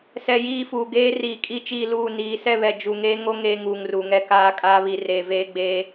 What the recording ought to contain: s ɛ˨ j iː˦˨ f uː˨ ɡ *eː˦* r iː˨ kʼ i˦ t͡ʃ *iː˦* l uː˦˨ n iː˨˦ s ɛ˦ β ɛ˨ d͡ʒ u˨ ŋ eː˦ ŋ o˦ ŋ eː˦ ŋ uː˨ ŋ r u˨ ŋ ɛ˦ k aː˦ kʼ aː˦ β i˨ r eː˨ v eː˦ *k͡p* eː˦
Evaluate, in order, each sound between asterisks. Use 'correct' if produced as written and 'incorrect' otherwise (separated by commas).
correct, incorrect, incorrect